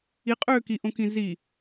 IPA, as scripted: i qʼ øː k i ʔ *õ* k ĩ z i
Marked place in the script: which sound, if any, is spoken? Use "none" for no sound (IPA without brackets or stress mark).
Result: õ